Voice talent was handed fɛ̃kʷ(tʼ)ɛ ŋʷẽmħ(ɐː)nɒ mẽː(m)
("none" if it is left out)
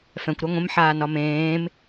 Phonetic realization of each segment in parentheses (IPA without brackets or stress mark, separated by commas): ɾ, aː, m